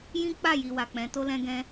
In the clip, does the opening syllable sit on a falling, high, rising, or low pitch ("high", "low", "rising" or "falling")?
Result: high